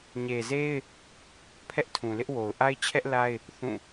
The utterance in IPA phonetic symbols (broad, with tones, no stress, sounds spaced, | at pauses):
ɲ e˨ z e˦ ɪ̯ | pʰ ɛ˦ ʔ tʰ ũ˨ l ɪ˦ ʔ w o˨ ʊ̯ ʔ a˦ ɪ̯ t͡ɕʰ ɛ˦ ʔ l a˦ ɪ̯ | θ ũ˦˨